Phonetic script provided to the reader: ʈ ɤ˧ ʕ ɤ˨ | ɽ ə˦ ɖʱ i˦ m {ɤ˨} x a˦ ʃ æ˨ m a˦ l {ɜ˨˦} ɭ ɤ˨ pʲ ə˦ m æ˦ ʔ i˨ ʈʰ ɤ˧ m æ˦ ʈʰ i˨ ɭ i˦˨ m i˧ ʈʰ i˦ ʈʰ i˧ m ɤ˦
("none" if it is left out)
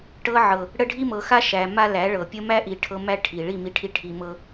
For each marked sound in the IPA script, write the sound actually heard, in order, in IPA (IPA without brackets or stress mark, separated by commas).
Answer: ɤ˨, æ˨˦